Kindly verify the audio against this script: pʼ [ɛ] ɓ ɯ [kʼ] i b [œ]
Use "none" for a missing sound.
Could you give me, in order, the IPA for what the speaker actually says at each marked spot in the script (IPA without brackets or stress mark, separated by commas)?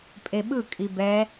e, kʼ, ɛ